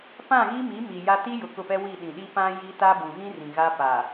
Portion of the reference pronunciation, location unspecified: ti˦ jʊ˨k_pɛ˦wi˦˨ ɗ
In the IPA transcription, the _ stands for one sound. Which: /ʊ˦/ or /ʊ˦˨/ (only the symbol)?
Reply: ʊ˦˨